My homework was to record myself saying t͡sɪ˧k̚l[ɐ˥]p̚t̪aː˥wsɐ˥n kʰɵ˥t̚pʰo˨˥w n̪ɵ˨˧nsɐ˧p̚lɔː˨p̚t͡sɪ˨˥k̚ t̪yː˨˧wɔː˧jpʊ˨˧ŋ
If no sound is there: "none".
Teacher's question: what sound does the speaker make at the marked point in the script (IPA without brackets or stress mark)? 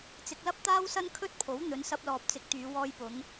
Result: ɐ˥